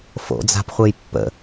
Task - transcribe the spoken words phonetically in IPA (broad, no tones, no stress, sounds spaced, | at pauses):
f o̰ d͡z a̤ p χʷ e j pː ə̰